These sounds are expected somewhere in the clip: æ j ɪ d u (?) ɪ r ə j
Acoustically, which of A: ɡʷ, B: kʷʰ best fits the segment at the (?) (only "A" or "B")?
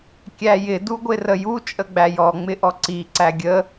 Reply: A